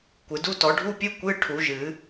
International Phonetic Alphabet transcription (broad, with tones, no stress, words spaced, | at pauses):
kʷɨ˨˩˦du˧˥˧ tɔ˨˩˦ɖʱu˧˥˧pʲɨ˧˥˧ kʷɨ˧˥˧ ʈʰu˨˩˦ʒɨ˨˩˦